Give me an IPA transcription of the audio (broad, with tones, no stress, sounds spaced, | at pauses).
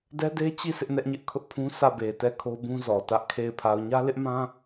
d ɛ˦ d e˦ t͡ɕ i˦˨ s ɪ˦ ʔ n ɛ˦ ʔ ɲ ɪ˦ ʔ kʰ ʊ˦ ʔ pʰ ũ˦ sʰ ä˦˨ b e˨ t ɛ˦˨ kʰ o˦ b ũ˦ z ɔ˨ t ä˦ ʔ kʰ e˦˨ ɪ̯ pʰ a˨ ʊ̯ ɲ ä˦ l ɪ˦ ʔ m ã˦